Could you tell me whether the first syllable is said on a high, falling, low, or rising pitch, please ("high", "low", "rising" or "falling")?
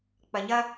low